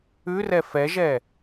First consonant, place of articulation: alveolar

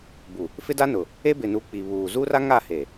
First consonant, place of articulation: labial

